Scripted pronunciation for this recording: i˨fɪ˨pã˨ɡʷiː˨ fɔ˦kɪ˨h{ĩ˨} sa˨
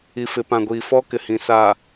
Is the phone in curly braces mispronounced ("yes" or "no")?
no